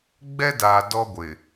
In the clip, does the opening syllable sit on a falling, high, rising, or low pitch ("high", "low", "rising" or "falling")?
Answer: high